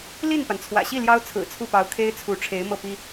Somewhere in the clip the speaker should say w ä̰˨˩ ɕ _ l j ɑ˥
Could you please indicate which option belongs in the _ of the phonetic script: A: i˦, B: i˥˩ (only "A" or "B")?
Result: B